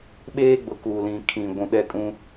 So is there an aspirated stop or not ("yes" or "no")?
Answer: yes